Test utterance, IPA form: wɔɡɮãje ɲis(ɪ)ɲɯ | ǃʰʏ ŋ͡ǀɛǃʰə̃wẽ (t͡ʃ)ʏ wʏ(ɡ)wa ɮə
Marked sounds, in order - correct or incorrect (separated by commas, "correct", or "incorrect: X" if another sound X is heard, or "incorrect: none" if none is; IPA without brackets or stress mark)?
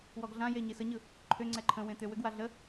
incorrect: ə, incorrect: t̪, correct